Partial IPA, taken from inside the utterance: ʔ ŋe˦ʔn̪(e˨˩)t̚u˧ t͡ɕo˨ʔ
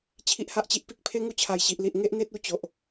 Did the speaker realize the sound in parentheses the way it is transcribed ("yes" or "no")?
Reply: no